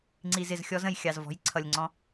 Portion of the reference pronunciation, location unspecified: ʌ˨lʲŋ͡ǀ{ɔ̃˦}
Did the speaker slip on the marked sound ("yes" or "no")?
yes